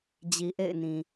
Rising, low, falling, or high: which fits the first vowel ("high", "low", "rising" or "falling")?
low